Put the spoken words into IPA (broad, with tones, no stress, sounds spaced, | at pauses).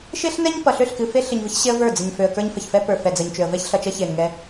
ʃ e˦ ɬ n ɛ˦ ɲ p ʌ˨ ɬ ø˦˨ ɬ k ɨ˨ f e˦ ɬ ɨ˨ ɲ v ə˦ ç ɕ e˦ ə̯ v ə˞˦˨ d͡z ə˨ ɲ f ø˨ ə̯ k ə˞˦ ɲ f ə˨ ç f ɛ˦ p ə˞˨ f ɛ˨ d͡z ə˨ ɲ t͡ʃ ø˨ ə̯ v ɛ˦ ç ɬ ʌ˨ t͡ʃ ʌ˦ ç e˨ n ŋ ɛ˦